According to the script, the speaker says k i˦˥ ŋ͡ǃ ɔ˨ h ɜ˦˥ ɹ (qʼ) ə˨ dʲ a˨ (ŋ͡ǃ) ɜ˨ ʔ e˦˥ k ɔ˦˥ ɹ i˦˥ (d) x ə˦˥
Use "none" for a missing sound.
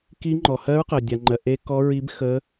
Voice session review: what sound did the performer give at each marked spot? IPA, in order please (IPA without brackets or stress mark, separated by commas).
q, ŋ͡ǃ, b